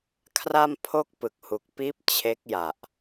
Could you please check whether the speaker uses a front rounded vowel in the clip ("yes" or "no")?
no